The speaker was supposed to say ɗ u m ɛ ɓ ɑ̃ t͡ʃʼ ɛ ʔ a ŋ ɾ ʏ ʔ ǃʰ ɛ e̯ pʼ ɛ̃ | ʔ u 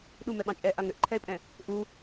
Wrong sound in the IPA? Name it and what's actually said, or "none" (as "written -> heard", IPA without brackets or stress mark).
none